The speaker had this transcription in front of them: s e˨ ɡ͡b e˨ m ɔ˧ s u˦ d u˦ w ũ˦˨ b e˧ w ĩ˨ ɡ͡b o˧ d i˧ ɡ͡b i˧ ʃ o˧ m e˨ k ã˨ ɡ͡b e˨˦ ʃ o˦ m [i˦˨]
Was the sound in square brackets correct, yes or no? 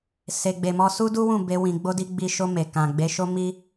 no